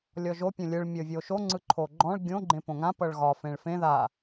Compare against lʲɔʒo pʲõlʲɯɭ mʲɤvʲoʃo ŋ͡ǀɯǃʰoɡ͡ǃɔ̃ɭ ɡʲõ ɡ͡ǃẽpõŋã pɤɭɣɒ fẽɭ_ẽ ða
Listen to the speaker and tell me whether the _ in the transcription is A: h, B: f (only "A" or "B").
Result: B